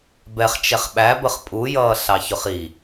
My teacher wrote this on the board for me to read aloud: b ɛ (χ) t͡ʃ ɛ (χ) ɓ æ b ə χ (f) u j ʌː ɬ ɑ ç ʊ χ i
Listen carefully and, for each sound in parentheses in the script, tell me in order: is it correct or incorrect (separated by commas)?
correct, correct, incorrect